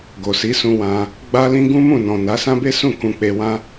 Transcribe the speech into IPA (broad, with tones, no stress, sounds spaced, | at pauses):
ɡ o˨ s i˨˦ s ũ˧ w ã˧ | ɡ͡b a˦ l ĩ˦ ɡ ũ˦ m ũ˦˨ n ɔ̃˨ n a˨˦ s ã˦ b e˦ s ũ˦˨ k ũ˧ k͡p e˧ w ã˦